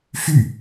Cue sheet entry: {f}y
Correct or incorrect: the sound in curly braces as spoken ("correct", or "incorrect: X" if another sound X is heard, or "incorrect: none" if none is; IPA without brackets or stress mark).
correct